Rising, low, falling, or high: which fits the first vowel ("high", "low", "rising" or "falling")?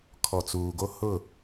low